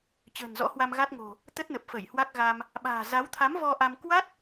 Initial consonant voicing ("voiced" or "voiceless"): voiceless